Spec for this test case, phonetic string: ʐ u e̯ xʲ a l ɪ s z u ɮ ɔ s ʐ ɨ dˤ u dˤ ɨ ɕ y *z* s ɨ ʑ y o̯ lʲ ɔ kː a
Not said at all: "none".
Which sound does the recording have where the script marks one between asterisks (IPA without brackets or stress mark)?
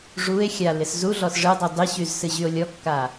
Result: z